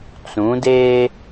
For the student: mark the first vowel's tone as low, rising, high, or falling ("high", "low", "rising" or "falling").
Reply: rising